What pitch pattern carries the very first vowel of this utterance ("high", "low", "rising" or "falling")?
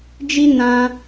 high